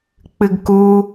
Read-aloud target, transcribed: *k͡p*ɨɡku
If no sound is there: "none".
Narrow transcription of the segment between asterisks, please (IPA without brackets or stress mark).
k͡p